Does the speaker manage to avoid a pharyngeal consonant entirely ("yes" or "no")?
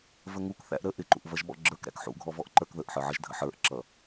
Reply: no